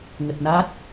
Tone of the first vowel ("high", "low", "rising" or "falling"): low